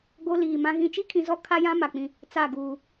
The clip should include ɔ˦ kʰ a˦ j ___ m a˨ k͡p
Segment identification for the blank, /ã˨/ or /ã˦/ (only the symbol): ã˦